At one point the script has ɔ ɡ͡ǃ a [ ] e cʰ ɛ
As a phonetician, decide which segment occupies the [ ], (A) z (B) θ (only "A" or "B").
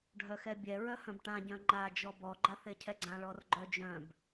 B